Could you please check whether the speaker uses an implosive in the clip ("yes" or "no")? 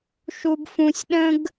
yes